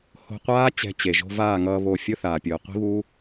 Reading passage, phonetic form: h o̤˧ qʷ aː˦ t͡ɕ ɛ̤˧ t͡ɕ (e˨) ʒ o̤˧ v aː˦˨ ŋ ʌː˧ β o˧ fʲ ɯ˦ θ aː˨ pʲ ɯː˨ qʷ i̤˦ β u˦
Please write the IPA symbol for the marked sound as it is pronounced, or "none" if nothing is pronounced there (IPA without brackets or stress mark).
e˨